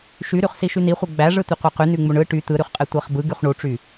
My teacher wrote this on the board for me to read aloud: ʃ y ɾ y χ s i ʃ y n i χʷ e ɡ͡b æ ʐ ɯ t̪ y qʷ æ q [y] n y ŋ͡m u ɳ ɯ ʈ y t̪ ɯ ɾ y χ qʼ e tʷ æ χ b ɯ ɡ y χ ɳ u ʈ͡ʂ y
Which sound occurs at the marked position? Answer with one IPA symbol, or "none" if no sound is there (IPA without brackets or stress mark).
y